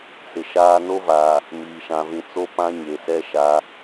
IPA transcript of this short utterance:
s ɪ˨ ʃ aː˦ n o˦ v aː˨ | m iː˨ ʃ ã˨ v ĩ˨ t͡s o˦ p ã˦ ɲ e˨ s ɛ˦ ʃ a˨˦

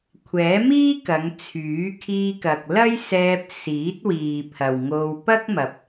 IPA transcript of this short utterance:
kʷʰ ɛː˨˥ m iː˥ k ɐ˨˧ ŋ t͡sʰ yː˨˥ kʰ iː˧ k ɐ˨ k̚ l ɐ˥ j s ɛː˧ p̚ s iː˨˥ t̚ w iː˨ pʰ ɐ˨ w ŋ o˧ w p ɐ˥ k̚ m ɐ˨ p̚

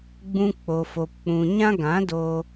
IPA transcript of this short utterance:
ɡ͡b ũ˧ k͡p o˨ f o˨ p k͡p ũ˨ ɲ ã˦ ɡ ã˨˦ d o˧

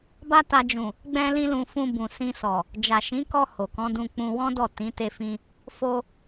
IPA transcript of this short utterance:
b a˦ t a˧ d͡ʒ ũ˨ | ɡ͡b ɛ̃˦ l ĩ˦ l ũ˧ f ũ˧ b ũ˨ s ĩ˧ s ɔ˨ | d͡ʒ a˨ ʃ ĩ˨˦ k ɔ˧ h o˨ k ɔ̃˨˦ d ũ˧ k͡p ũ˧ w ɔ̃˦ d ɔ˦˨ t ĩ˨˦ t e˧ f ĩ˧ | f o˧

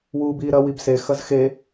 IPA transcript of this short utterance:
w uː b iː ɾ ɐ w i b s e x ɐ z x e

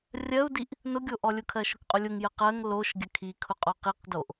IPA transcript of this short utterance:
rʲ ɜ u̯ d i ʔ | n ʊ ɡʲ o ʔ ɔ lʲ ʊ kʰ ɜ ʃ ʊ k qʼ ʊ lʲ ʊ ŋ j ə q ɜ ŋ l o ʃ ɡʲ ə kʰ i kʰ ʊ qʼ ɔ q i q d o ʔ

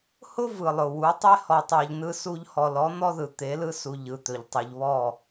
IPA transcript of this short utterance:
h ʊ˦ v ɯ˨ lˠ ʊ˨ w u˨˦ tˤ e˦ h ɔ˨ tˤ ɑ˨ ʎ n ɯ˦ s u˦ ʎ h ɔ˨ l ɔ˨˦ n̪ ɔ˦ ð ɯ˨ t̪ e˨˦ l ɯ˦ s u˨ ʎ ɯ˨ t̪ ɵ˨ ʎ tˤ ɯ˨ ʎ β ɔ˦˨

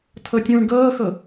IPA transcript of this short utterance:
tʰ ɤ tʲ ũː ɳ ɡ ɤː x ɤ

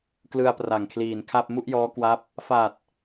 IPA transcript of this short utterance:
k l ɯ˧ a̯ p r a˨˩ ŋ kʰ l iː˨˩ n kʰ a˥˩ p̚ m u˥˩ ʔ j ɔː˦˥ k w a˦˥ p̚ | f a˨˩ t̚

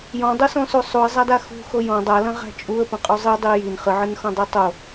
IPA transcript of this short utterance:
j ɔ̃ dˤ u s ɔ̃ s u sˤ u ə̯ zˤ a d a x ṳ x o j ɔ̃ dˤ a l ɐ̃ ʁ æ̤ t͡ʃʼ u ə̯ p ɐ̃ qʼ u zˤ ɨ dˤ i j i n χ ɨ ʕ ɨ n x ɔ̃ dˤ ɨ tˤ o

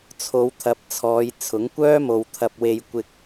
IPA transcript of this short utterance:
t͡sʰ o˨˧ w t̪ʰ ɐ˨˥ p̚ t͡sʰ ɔː˨˧ j t͡sʰ ʊ˨˥ ŋ kʷ œː˥ m o˨ w t̪ʰ ɐ˨ p̚ w e˧ j kʷ ɪ˧ k̚

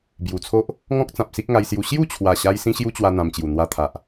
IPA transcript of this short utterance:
b j u˨˩ t͡sʰ o˦ ʔ | ŋ ɔ̃˦ k̚ t͡s ã˨ p̚ s i˦ k̚ ŋ a˧ j s j u˧ ɕ j u˥˧ t͡ɕʰ w a˨˩ ɕ a˧ j s ĩ˦ ɕ j u˦ t͡ɕ w a˧ n̪ ã˧ m t͡ɕ j u˨˩ n̪ w a˧ t̪ʰ a˨ ʔ

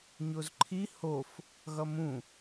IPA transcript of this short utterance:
ɲ o z ǃʰ i h o f | ɣ ʌ m ũ

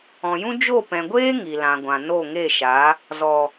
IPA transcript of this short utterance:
ɔ̃˨ j ũ˦ d͡ʒ o˦˨ p ɛ̃˨ ɡʷ eː˦ ŋ i˨ l ã˨ ɡʷ ã˨ n o˦˨ ŋ e˦˨ ʃ a˨˦ | z ɔ˨

